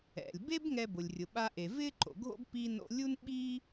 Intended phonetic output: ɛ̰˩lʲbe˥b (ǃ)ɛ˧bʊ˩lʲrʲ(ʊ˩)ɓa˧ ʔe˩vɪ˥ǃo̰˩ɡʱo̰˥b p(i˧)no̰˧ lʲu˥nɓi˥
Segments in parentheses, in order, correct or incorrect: incorrect, correct, correct

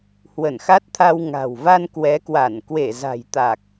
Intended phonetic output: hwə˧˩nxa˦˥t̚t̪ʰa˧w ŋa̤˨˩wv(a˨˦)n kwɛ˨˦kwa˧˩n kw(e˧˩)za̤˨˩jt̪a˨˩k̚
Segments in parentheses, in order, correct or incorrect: incorrect, correct

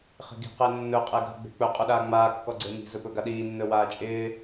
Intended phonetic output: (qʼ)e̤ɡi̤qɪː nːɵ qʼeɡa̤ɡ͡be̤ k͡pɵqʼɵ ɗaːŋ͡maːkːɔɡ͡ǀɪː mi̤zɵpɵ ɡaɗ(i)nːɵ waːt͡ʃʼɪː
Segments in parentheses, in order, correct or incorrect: incorrect, incorrect

